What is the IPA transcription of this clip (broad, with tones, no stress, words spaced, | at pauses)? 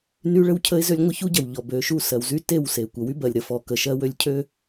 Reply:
ny˦ɭə˦wcʰə˦ɪ̯zø˦lʲ ŋʷə˦çu˦ɟɐ˨w ʎɔ˨bø˨ʃu˦˨ sɜ˨wzy˦te˦˨w se˨ kʷɐ˨wy˦bɜ˨lʲ ɾə˨fɔ˨ kə˨ʃɜ˦wø˦lʲ cʰø˦